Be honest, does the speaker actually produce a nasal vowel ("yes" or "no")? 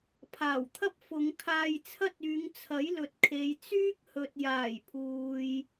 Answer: no